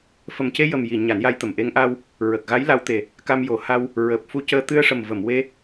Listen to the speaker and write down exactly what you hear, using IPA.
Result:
f ə˨˩ m c e˧ j ə˨˩ m j i˨˩˨ ɲ a˨˩˦ n j a˧˥ j t̪ ə˨˩ m ʔ e˧˥ ŋ ʔ a˧ w | ɹ ə˨˩ k̚ ɣ a˧˥ j l a˧˥ w t̪ e˨˩ | k a˧ m j o˨˩ h a˧ w | ɹ əː˨˩ p̚ f u˧ c əː˧ t̪ ɨ˧ ə̯ ʂ ə˨˩ m v ə˨˩˨ m w e˧

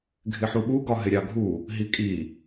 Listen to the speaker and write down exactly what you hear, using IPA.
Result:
ɡʱ ɪ ħ u ɓ u ɡ ɒ ɦ ɪ ɾʲ ɑ ɡʱ u | ɦ i kʼ i

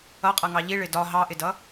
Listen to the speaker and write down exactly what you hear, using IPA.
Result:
ʌ qʼ ʌ ŋ ɑ ʎ i ɭ ɪ d ɒ ɦ ɑ ʔ ɪ d ʌ

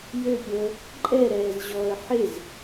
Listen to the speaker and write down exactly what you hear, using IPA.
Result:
j ø pʲ əː | ǃʼ ɛ ɾ ɛː z ʑ ɔ ə̯ ħ e z

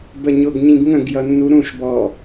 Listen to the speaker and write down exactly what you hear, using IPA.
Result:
b ə ɲ ʊ ɡ ɲ ĩ ɡ ŋ ə̃ ɡ j ʌ nː u ɾ ũ ʃ b ɔ

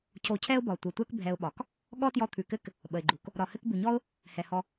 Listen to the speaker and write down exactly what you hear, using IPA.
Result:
cʰ o˧ cʰ ɛ˦ ʊ̯ b ɒ˨ tʷ ɘ˨ tʷ ɛ˦ k bʱ ɛ˧ ʊ̯ ɓ ɒ˨ k | ɠ ɔ˦ t j ɔ˧ t̪ʰ ʉ˨ k ɘ˦ k | ɓ ə˨ ɪ̯ ɡ͡ǃ u˨ k | ɾ ɒ˨ h ɘ˦ k b ʉ˨ ɲ ɔ˦ ʊ̯ | h ɛ˨ h ɔ˧

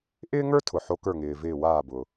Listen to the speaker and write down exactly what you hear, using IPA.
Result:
ʔ ɪː˦ ŋ ə˞˦ tʰ ʊ˩ ħ o˨˦ k ə˞˧˩ ŋ ɪː˩ v ɪː˧˩ w aː˧˩ b ʊ˩

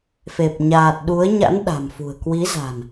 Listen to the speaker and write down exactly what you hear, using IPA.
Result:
f e˨˩ p̚ ɲ aː˨˩ t̚ ɗ u˨˦ ə̯ ɲ a̰˧˥ n ɗ a̤˨˩ m f ṳ˨˩ ə̯ k w i˨˦ z a̤˨˩ n

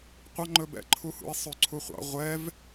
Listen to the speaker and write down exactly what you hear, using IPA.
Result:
qʷ ɑ ŋ͡ǃ ɵ b ɛ̰ ǃʰ u h ṵ i̯ sˤ ø ǀʰ u χʷ ɑ̰ ʁʷ ɛ v

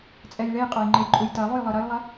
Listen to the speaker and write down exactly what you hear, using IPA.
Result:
t͡sʼ ɛ j ɭ e j qʼ œ j ŋ͡ǃ e j ǃʼ u j t ɐ lˠ u j lˠ ɯ ɾ ɐ j lˠ ɐ

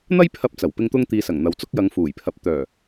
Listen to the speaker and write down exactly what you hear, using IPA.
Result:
n̪ ɐ˥ j pʰ ɐ˧ p̚ t͡s ɐ˨˩ w p ɪ˧ ŋ t̪ ʊ˧ ŋ t̪ iː˨ s ɐ˨˩ ŋ n̪ ɐ˨ w t͡s ʊ˥ k̚ j ɐ˨˧ ŋ f uː˨˩ j pʰ ɐ˨˥ p̚ t̪ œː˨˩

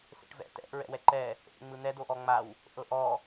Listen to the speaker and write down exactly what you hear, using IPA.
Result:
s ḛ ʈ v ɛ̰ t ɛ̰ ʔ ɹ ɛ̰ w ɛ ǃ ɛ | ʔ ḛ ŋ͡m ɯ n̪ ɛ d o ʔ ɔ ŋ͡m a w | ʔ ɤ ʔ ɔ

